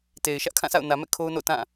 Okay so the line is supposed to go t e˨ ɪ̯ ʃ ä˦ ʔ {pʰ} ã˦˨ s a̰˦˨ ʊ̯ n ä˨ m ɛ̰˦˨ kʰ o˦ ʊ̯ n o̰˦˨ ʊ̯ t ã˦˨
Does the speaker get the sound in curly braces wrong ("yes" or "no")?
yes